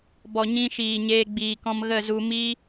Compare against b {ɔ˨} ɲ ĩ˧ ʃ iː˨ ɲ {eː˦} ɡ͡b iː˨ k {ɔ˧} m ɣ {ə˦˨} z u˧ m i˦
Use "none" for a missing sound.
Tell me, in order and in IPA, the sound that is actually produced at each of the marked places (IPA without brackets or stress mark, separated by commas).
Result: ɔ˨, eː˧, ɔ̃˧, ə˦˨